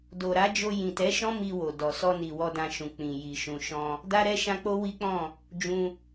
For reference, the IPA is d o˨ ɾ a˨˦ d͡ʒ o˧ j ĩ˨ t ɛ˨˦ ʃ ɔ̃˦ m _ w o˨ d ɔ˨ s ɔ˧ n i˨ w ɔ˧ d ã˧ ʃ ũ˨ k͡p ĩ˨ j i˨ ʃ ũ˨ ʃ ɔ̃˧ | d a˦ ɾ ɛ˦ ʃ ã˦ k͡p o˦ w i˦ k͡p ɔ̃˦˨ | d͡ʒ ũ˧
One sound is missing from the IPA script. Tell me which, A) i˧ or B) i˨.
A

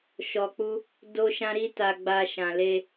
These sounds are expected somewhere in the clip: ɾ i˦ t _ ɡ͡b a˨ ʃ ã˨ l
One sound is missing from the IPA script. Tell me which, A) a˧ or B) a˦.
A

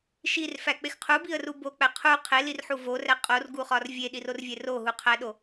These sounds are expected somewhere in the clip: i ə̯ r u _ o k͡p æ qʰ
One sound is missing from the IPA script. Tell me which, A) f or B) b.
B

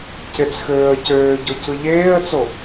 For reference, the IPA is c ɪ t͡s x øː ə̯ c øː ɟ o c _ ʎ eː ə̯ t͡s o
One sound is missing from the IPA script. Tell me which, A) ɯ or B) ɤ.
A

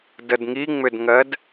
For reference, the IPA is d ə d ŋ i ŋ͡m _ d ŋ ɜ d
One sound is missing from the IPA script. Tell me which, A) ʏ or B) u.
A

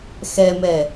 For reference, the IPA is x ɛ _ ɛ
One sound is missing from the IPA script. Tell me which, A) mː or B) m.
B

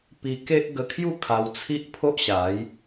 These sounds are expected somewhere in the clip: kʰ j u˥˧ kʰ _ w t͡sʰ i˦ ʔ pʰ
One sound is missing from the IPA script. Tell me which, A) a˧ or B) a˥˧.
A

